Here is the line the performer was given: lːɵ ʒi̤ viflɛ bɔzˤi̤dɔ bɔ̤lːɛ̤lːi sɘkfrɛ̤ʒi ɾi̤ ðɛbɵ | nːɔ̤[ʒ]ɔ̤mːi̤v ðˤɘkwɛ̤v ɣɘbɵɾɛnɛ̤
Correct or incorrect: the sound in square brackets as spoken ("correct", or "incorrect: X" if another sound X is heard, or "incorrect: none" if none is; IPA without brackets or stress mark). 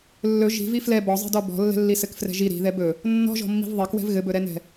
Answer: correct